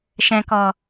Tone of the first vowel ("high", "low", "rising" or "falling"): low